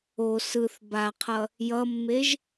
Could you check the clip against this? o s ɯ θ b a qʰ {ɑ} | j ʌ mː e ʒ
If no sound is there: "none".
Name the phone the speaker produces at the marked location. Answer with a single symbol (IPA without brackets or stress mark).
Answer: ʌ